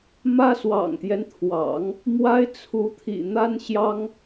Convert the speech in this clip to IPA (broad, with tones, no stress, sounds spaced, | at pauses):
m ä˥ s w ɑ̰˨˩ ŋ t̪ j ɛ˦ n t̪ʰ w ɑ̰˨˩˦ ŋ | m w a˥ ɪ̯ t͡sʰ u˧˥ t̪ʰ ḭ˨˩ n̪ a˥ n ɕ j ɑ˥ ŋ